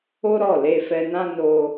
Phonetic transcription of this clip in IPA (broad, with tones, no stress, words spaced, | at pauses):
o˦ɾɔ˦˨ le˧fɛ˧nã˦ no˦